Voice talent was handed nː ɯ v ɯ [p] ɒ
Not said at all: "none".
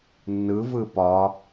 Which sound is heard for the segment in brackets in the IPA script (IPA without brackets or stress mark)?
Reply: p